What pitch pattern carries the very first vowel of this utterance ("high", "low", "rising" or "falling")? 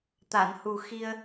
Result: low